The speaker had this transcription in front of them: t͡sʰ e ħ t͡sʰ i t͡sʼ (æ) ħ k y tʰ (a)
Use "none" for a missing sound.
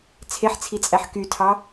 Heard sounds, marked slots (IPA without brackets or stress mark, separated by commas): æ, ɑ